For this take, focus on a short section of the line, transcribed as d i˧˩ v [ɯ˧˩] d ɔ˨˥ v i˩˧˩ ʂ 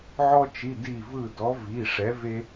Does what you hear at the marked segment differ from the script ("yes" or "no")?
no